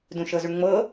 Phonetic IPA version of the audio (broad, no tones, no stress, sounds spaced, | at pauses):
d ũ ʃ ɤ z u ɳ ŋ͡m ɤ